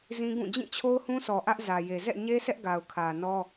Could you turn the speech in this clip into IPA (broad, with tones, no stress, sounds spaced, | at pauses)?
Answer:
z ĩ˦ ɡ ũ˦˨ d͡ʑ ĩ˦˨ t͡ɕʰ o˦ ʊ̯ h ũ˦ sʰ ɔ˨ ʔ ä˦ ʔ z ä˨ j e˨ z ɛ̰˦˨ ɲ e˦ sʰ ɛ˦ ʔ ɡ a˨ ʊ̯ kʰ ä˨ n ɔ˦